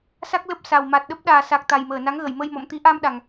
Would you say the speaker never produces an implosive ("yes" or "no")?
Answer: no